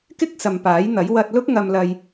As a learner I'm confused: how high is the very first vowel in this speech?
high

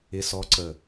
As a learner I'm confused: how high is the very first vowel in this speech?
high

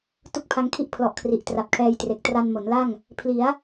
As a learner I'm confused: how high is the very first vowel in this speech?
high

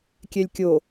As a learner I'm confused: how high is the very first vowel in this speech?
mid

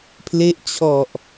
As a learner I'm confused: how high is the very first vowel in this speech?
mid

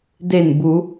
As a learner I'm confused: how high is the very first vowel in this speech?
mid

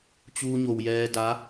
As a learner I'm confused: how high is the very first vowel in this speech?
high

